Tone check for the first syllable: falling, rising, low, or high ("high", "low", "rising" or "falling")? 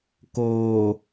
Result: low